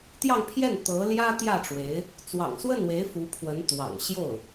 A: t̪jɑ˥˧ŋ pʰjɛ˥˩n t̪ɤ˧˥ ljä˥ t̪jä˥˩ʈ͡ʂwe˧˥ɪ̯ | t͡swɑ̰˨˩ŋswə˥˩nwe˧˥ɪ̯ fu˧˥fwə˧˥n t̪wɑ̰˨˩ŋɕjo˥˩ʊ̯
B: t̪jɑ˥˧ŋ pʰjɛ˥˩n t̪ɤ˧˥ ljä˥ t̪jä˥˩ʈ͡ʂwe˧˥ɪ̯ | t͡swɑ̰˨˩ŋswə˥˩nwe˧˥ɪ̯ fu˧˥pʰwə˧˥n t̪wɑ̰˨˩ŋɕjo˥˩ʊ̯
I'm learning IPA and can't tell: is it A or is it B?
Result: B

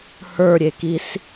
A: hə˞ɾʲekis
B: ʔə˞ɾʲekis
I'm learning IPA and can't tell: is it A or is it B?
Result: A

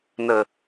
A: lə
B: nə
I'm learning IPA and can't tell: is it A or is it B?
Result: B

